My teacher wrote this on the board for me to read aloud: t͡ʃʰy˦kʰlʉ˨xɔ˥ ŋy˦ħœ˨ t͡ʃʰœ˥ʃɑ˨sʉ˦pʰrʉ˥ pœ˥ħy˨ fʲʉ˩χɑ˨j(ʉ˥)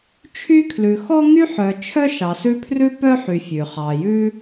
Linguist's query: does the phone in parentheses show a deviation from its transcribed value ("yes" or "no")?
no